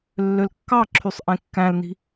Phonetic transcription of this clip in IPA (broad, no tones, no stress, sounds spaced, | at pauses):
lː ø l kː ɑ ǁʰ y sˤ ʔ ẽ kː æ̃ l n i̤